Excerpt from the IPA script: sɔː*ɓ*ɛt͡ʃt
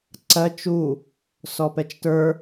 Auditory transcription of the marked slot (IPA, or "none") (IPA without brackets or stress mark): p